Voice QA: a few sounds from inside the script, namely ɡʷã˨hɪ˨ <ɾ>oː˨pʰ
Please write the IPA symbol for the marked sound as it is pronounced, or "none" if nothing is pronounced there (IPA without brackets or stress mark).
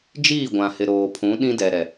ɾ